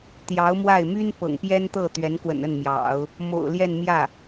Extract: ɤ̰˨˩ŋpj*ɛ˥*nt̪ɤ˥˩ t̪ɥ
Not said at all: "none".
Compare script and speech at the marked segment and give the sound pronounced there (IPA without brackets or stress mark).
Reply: ɛ˥